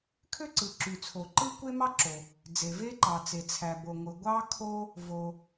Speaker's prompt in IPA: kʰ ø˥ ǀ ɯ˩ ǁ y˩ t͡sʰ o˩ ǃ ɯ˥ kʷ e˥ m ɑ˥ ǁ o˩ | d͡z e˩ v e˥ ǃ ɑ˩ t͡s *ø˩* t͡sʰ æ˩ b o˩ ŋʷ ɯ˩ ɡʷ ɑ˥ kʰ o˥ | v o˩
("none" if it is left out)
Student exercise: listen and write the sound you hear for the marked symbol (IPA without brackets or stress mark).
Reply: e˩